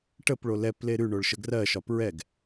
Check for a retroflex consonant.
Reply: present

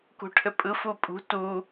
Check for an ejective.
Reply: present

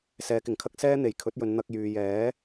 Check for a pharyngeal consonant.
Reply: absent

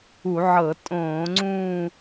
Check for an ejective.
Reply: present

